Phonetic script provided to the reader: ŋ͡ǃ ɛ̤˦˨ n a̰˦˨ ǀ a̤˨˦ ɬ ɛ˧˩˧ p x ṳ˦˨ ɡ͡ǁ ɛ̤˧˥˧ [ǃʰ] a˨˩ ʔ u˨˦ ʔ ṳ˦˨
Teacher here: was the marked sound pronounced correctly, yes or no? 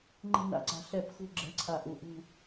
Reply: no